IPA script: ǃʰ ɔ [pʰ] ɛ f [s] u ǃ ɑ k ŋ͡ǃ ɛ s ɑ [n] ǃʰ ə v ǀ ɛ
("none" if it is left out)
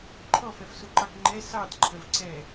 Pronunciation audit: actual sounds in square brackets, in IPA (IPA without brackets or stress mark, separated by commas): f, s, d